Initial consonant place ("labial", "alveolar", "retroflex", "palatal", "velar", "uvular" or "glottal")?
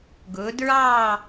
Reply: velar